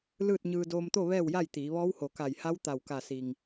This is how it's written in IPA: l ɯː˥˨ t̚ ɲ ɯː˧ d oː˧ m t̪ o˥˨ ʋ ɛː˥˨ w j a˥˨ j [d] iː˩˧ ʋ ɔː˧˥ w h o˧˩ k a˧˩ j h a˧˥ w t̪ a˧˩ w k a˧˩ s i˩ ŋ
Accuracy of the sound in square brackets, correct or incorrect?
incorrect